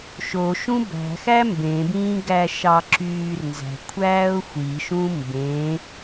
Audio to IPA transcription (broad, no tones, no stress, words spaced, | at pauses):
ʃo ʃũbæ̤ xæmbẽbĩː ɡæʃɑǁyːrnzæ̤ kʷʰæːʊ̯xʷiʃũ mbẽ